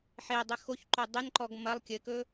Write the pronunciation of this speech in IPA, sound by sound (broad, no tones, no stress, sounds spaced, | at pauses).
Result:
ħ e dˤ ɘ x o ç ǃ o dˤ ɘ n ǃ ɔ ɡ m ɐ lˠ kʲ ɘ k ɵ